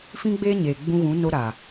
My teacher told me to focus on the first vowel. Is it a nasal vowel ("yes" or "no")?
yes